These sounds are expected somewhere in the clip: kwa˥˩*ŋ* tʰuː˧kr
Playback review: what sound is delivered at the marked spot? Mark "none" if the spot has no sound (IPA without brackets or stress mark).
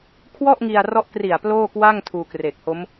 ŋ